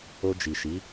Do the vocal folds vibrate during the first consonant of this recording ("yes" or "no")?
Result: yes